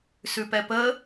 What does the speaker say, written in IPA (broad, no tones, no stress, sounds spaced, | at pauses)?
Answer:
s ʉ p ɛ p ə